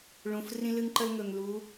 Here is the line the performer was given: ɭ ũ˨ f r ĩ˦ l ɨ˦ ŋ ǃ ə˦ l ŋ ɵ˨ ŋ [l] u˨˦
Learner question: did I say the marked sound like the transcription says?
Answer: yes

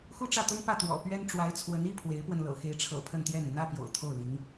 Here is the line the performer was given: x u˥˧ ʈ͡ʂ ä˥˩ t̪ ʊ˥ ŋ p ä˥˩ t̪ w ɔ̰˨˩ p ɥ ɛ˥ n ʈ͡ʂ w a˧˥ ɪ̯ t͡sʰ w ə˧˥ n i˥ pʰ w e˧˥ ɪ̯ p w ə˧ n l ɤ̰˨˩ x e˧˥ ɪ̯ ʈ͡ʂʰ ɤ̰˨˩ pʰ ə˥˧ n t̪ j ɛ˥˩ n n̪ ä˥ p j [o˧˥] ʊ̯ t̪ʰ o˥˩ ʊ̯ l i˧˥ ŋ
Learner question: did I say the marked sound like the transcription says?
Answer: no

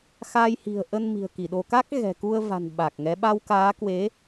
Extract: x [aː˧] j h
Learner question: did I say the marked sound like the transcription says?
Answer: yes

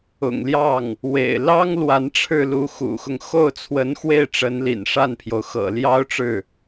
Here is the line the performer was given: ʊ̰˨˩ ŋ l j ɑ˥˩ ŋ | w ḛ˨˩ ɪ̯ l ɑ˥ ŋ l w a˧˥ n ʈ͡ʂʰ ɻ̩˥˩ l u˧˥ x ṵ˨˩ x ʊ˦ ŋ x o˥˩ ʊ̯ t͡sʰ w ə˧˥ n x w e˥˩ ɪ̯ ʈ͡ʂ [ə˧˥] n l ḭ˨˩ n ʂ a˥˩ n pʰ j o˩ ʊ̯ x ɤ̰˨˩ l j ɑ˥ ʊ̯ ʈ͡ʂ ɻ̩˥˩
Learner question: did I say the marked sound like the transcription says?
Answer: yes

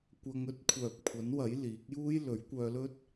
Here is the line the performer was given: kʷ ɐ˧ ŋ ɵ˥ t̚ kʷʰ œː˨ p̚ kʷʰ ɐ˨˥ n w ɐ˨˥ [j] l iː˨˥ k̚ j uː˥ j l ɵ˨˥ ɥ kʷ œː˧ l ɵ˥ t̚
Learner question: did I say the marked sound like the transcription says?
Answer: yes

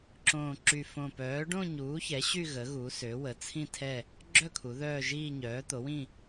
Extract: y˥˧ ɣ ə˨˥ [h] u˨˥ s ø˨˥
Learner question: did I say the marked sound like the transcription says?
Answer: no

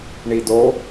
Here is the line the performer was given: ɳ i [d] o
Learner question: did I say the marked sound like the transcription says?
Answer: yes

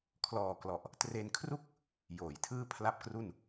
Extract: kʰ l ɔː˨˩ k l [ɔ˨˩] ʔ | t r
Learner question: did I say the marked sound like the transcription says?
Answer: yes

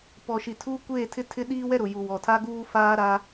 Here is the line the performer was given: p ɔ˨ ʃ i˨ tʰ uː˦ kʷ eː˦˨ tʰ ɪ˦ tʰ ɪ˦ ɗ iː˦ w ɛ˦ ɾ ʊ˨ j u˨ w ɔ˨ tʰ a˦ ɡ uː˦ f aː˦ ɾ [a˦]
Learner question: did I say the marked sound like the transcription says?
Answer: yes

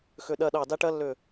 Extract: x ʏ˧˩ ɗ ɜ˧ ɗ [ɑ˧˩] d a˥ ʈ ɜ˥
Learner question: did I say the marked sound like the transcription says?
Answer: yes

